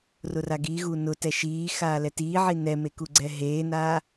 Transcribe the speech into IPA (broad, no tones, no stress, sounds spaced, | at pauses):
r ʊ r a ɡ i ɣ u n ʊ t ɛ ʃ iː x aː l ɛ t iː ʕ i n ɛ m e k u ɡ͡ǀ ɛ ɦ eː n aː